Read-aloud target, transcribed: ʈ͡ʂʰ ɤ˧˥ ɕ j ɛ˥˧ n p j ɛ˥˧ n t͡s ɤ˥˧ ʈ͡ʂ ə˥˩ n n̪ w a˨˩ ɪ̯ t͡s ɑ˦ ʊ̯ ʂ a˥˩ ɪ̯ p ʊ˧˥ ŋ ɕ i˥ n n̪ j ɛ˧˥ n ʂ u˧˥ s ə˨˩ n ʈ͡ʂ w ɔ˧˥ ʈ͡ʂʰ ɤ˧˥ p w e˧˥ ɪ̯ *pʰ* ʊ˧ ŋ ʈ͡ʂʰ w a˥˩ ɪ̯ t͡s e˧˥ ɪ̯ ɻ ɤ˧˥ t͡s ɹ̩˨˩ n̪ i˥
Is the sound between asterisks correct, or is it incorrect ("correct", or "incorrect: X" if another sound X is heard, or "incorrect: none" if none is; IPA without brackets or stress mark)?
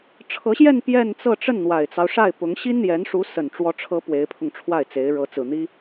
correct